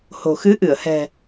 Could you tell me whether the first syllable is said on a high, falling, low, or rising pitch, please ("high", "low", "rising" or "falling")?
low